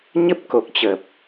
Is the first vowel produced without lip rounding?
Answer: yes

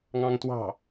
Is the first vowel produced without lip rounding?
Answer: yes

